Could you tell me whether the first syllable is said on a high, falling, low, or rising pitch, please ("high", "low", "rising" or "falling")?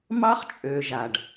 high